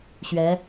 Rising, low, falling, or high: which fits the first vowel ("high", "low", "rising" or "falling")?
rising